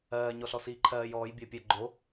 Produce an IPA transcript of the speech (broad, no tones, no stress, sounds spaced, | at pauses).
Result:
ɜː ɲ ɔ ɬ ɔ s iː ǃʰ ɜː j ɔː j bʲ ɜ pʲ ɜ ɡ͡ǃ o